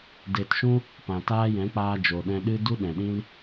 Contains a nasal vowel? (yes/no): yes